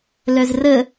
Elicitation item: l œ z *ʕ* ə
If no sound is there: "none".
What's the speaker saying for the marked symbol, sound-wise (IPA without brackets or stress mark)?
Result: r